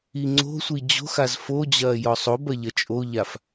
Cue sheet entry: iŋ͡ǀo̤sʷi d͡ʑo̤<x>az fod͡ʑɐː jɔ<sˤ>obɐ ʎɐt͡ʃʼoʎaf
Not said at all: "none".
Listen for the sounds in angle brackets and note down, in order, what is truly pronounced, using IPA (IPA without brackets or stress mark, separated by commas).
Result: x, sˤ